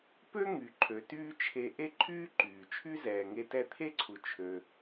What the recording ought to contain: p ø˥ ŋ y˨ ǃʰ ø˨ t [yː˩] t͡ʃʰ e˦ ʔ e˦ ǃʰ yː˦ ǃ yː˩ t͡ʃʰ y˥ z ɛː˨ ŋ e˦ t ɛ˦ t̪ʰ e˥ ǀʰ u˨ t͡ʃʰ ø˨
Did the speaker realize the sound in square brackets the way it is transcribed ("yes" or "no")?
no